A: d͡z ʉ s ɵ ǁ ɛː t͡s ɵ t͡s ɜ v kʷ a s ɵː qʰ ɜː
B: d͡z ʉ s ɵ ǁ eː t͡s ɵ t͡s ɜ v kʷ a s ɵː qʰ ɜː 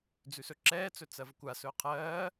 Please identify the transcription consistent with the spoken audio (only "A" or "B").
A